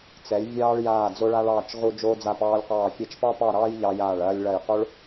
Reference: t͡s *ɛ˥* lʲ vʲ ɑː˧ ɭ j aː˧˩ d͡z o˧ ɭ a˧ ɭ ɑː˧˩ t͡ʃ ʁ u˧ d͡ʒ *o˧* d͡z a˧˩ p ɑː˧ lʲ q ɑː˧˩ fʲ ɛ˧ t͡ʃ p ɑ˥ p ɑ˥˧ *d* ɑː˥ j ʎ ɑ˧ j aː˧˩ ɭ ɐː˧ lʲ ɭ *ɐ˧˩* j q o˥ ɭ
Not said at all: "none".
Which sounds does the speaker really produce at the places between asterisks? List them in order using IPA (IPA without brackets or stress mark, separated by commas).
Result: ɛ˩˧, oː˧, ɾ, ɐ˧˩